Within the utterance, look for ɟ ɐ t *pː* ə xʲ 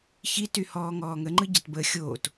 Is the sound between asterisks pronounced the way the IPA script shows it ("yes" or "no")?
no